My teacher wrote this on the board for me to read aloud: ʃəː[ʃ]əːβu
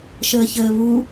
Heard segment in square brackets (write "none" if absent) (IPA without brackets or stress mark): ç